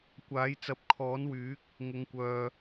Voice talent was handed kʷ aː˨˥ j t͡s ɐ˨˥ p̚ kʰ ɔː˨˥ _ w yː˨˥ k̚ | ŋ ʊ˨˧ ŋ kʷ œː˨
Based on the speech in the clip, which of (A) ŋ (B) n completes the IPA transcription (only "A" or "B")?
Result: B